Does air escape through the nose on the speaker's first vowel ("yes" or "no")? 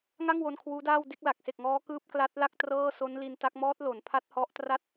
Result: no